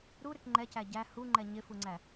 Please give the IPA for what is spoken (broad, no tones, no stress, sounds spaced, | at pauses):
ɾ u ɾ ɪ k ŋ͡ǃ ɛ c æ ɟ æ h u ŋ͡ǃ ɛ ɲ ɪ f u ŋ͡ǀ æ